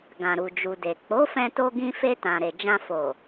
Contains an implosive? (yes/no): no